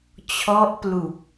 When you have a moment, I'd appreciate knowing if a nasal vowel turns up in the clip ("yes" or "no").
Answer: no